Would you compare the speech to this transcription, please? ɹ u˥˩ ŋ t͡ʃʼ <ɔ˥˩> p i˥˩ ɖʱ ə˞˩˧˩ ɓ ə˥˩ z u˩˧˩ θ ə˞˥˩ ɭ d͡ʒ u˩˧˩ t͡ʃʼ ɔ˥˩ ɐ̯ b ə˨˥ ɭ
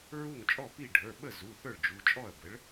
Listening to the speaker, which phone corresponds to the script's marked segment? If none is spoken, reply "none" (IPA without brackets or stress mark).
ɔ˥˩